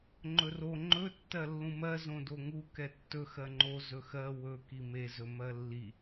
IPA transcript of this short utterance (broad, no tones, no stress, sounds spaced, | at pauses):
ŋ͡ǃ ɵ r o ŋ͡ǃ ɵ tː ɜ lː ũ m ɜ z õ d o ŋ u k ɛ tː ɵ x ɜ ŋ͡ǃ o z ɵ x ɜ w ɵ k i m e z ɵ m ɜ lː i